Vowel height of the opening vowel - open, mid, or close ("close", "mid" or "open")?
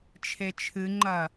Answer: mid